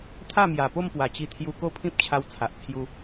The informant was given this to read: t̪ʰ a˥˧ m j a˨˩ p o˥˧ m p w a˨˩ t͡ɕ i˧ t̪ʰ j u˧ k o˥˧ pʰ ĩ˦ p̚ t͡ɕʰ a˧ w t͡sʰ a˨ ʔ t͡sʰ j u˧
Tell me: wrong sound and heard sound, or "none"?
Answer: none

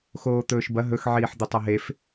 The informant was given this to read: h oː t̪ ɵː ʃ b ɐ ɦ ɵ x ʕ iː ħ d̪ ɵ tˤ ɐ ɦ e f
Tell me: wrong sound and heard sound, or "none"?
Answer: h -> x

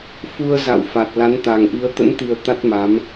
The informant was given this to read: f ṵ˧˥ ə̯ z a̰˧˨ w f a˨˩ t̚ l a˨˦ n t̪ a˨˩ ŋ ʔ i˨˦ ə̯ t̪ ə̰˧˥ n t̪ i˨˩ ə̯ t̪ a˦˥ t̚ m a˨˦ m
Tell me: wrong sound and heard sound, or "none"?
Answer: ṵ˧˥ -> u˧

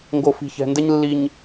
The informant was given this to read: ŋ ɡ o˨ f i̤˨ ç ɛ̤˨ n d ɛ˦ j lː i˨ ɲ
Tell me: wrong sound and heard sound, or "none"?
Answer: j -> ɲ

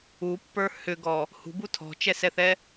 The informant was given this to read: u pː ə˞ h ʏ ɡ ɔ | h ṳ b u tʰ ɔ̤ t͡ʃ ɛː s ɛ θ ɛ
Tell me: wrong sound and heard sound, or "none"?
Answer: ɛː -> ɛ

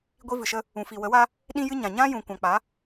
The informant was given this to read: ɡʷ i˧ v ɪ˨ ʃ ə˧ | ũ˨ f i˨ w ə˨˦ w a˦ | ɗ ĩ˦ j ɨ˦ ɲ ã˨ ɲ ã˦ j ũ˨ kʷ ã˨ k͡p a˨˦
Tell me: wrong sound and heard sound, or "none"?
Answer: ɪ˨ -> ɨ˨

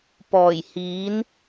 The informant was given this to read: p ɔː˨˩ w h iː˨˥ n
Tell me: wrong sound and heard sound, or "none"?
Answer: w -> j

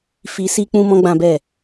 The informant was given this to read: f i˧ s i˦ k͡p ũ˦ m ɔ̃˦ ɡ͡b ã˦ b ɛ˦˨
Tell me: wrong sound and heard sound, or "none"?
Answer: none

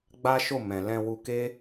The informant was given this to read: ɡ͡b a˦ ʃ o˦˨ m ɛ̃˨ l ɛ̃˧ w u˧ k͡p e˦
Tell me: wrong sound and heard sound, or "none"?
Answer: k͡p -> k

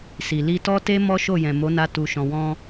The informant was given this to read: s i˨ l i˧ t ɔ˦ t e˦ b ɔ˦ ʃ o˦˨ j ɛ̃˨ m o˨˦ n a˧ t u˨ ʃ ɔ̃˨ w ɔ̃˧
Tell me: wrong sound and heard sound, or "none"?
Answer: b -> m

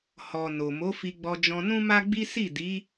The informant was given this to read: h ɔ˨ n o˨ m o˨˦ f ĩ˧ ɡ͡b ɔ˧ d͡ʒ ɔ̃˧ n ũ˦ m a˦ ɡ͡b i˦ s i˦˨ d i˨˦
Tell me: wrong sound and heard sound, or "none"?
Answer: ĩ˧ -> i˧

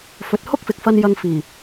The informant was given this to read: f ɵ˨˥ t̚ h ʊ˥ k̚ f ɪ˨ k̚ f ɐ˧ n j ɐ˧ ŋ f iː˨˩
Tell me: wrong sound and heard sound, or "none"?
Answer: none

